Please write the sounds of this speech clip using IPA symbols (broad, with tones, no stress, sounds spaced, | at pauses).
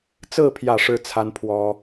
t͡s ɹ̩˥˧ pʰ j ä˥˩ ʂ ɻ̩˥ t͡sʰ a˥ n pʰ w ɔ˥